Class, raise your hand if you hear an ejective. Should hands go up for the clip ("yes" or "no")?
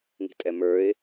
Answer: yes